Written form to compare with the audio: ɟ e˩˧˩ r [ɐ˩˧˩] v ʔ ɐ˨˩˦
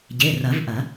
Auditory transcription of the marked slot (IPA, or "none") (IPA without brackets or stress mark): ɐ˨˩˦